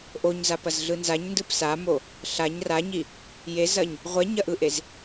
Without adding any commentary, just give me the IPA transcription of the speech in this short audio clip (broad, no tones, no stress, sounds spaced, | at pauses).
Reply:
ʔ o ɲ z a p ɐ z ɮ ɯ n z a ɲ n d ɯ p s a m o | ɬ a ɲ r a ɲ i | j e z ɐ ɲ | ʁʷ ɛ ɲ ɐ ʔ ɯ ʔ e z